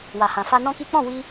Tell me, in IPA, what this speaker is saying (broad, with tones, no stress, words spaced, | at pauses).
wa˨hã˨fa˧ nɔ̃˦ki˦ k͡pɔ̃˦˨wi˧